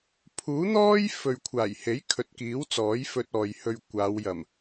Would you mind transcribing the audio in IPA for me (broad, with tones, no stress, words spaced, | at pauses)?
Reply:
pʰuː˨˥n̪ɔː˥j fɵ˨ɥkʷʰaː˨˩jhe˨˥j kʰɵ˨˥t̚kiː˨˥wt͡sɔː˨˥j fɵ˧t̚ɔː˨jhɵ˧ɥkʷaː˨˧w jɐ˨˩m